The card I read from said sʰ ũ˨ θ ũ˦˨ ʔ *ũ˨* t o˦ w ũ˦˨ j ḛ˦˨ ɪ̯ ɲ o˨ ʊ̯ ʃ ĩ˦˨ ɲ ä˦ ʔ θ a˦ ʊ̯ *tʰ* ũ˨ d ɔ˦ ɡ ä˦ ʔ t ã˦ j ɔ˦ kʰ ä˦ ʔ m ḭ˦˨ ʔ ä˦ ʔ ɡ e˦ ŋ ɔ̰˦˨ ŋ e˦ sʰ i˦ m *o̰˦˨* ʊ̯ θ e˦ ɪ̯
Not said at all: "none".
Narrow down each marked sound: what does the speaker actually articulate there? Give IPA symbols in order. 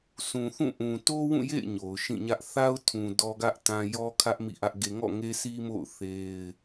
ũ˨, tʰ, o̰˦˨

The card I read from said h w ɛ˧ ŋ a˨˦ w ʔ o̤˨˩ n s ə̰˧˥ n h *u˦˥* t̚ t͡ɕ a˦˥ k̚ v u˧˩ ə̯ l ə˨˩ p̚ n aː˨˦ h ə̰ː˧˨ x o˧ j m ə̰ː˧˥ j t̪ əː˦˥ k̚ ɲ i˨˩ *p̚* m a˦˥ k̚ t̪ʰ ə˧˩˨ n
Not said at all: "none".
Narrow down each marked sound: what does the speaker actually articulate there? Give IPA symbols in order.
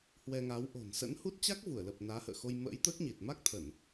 u˦˥, t̚

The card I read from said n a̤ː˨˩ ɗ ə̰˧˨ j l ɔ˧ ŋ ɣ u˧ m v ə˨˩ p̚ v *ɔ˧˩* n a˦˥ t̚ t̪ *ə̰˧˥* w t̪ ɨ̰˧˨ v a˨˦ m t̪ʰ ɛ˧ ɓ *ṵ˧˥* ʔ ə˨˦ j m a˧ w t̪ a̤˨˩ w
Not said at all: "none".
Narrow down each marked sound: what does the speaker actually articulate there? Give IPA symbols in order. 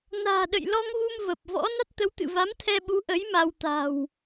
ɔ̰˧˥, ə˨˦, u˨˦

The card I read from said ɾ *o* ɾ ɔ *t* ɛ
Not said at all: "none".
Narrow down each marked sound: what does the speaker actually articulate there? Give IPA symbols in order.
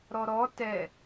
ɔ, t

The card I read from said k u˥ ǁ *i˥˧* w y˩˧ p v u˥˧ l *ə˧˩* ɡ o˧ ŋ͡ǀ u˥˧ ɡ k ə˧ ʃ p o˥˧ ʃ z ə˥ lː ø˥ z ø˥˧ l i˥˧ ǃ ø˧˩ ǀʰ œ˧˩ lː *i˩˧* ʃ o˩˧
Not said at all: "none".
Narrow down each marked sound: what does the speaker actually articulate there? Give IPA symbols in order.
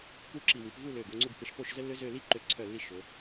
i˧˩, ø˧˩, i˧˩

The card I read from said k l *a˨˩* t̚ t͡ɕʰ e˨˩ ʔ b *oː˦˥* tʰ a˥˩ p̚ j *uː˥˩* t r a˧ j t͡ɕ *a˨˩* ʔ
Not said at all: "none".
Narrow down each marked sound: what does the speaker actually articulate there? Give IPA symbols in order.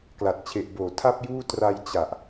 a˨˩, oː˨˩, uː˥˩, a˨˩

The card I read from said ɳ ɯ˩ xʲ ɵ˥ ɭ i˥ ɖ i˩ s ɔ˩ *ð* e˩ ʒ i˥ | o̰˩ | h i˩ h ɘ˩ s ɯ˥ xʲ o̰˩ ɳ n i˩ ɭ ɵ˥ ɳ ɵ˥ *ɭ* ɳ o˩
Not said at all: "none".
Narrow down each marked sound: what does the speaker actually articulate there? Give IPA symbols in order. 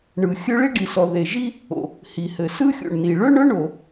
ð, none

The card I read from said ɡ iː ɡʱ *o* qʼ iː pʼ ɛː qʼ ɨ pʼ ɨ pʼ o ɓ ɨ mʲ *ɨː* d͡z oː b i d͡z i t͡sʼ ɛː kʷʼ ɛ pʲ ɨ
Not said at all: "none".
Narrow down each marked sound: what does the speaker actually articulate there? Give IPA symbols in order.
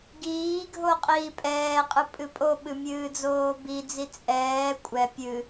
o, ɨː

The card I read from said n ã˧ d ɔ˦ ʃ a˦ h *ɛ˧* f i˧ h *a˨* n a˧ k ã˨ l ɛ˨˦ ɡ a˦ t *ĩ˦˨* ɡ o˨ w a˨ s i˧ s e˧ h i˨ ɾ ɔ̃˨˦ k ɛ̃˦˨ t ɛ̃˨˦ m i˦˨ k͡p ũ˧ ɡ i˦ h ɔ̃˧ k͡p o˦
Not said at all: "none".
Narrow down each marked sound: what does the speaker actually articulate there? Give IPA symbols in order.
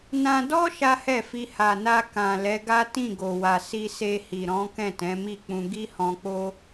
ɛ˦˨, a˨, ĩ˦˨

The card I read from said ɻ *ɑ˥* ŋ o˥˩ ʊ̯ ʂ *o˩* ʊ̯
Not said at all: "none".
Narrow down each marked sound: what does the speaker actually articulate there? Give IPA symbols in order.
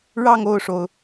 ɑ˥˧, o˩

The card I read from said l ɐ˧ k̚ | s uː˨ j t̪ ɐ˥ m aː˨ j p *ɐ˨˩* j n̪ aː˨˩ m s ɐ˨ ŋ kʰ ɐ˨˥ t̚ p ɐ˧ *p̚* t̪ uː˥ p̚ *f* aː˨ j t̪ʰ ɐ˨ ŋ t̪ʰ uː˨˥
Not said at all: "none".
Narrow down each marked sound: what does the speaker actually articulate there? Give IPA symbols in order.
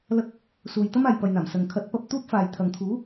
ɐ˨, p̚, f

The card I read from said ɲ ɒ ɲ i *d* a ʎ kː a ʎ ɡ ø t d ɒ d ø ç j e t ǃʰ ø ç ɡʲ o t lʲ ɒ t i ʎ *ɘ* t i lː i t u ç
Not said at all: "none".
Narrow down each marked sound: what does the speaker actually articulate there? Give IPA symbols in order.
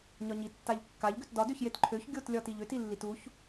tː, ø

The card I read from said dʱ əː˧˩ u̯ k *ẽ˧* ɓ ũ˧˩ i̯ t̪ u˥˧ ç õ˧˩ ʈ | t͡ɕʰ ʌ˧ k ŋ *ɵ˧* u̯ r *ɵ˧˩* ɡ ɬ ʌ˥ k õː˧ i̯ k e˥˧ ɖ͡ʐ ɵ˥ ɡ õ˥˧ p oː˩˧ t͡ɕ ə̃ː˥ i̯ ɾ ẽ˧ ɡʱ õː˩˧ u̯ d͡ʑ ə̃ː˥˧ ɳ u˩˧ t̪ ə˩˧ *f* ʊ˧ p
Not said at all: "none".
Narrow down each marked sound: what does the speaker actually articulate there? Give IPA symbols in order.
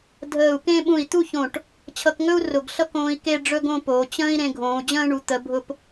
ẽ˥˧, ɵ˥, ʊ˧˩, bʱ

